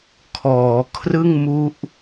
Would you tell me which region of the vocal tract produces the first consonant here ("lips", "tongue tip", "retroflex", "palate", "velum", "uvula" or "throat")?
velum